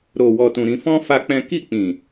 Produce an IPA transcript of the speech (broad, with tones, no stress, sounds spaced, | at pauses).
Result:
ɾ o˨ w ɔ˨ t ũ˨ ɾ ĩ˧ f ɔ̃˦ f a˦ k͡p ɛ̃˦ k i˦˨ k͡p ĩ˨